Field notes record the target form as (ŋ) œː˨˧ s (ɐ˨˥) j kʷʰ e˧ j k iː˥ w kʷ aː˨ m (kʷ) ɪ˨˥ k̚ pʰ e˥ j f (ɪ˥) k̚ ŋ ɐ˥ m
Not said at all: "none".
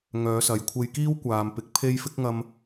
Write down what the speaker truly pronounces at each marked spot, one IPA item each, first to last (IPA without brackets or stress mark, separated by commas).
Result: ŋ, ɐ˨, p, ɪ˥